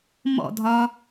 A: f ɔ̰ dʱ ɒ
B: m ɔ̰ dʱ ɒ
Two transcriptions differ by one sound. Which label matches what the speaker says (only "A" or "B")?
B